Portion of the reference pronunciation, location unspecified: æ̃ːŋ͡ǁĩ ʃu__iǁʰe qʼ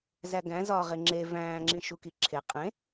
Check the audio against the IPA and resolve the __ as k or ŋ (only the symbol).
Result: k